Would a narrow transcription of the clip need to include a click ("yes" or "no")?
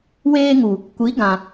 no